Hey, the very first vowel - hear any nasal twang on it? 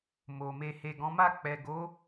no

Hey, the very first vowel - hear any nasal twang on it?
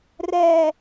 no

